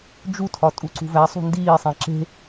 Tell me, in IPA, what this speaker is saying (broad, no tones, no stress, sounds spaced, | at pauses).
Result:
d͡ʒ u tʰ ɒ tʼ u ǀ ṳ v æ sˤ ṳ n d iː sˤ æ̃ ǁ e̤